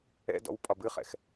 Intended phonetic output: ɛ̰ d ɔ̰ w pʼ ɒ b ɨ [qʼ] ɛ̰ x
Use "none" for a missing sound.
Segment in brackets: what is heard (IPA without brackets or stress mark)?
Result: χ